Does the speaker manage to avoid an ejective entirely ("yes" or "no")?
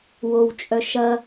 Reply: no